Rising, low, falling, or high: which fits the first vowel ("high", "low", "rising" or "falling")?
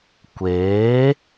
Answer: rising